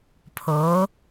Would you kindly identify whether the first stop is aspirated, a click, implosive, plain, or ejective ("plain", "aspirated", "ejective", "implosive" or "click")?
aspirated